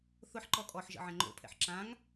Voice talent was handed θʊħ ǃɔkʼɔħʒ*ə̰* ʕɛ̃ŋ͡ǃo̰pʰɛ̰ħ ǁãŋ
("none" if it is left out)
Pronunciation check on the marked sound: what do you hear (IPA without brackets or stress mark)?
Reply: ə̰